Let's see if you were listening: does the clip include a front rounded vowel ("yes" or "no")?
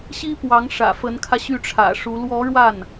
yes